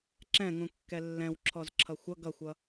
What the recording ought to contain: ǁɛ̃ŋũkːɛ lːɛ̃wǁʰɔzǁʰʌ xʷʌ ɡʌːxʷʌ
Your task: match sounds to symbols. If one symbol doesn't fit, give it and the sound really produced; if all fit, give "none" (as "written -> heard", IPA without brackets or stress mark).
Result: ʌː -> ʌ